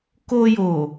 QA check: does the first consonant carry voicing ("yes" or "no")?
no